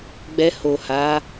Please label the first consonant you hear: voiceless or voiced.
voiced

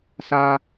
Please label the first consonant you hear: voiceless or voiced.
voiceless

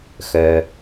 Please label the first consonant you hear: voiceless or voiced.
voiceless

